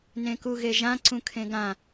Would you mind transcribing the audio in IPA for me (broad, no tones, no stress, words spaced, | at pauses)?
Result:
nẽkuɣeʒã ǀũkʰẽɡã